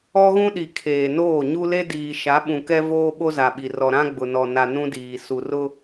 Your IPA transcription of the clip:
ɔ˦ ɣ ũ˦ ɗ i˨ kʰ eː˨ n oː˦˨ ɲ u˦ l e˦ d iː˨ ʃ a˨˦ ɓ ũ˨ k ɛ˦ v oː˦ ɓ o˦ z a˨ ɓ i˨ r ɔ˨ ɾ ã˦ ɡ͡b ʊ˨ n ɔ˨ n a˨ n ũ˦ d iː˨ s u˨ r ʊ˦

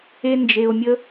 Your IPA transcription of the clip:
e˥ n d͡ʒ e˧ o̯ mʲ ə˥

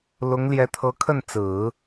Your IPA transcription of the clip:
l ʊ˧˥ ŋ l j ɛ˧˥ t̪ʰ ɤ˧˥ kʰ ə˥˩ n t͡s ɹ̩˨˩˦

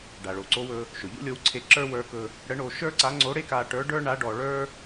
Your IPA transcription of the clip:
ɖ a˩ ɭ o˩ ǀ o˧˥ w ɵ˧ | ʃ ɵ˩ ʎ ṵ˥ lʲ o˧˥ w ǀʰ e˧˥ ǁ ə˞˥ w ə˞˧˥ k ɵ˧ | ɽ ə˧˥ ɳ o˧ ʃ ə˞˥ ǀ a˧˥ ŋ͡ǀ o˧˥ ɽ e˥ k a˧ ʈ ə˞˧˥ ɖ ə˞˥ ɳ a˧˥ ɖ ɔ˧ ɭ ə˞˥

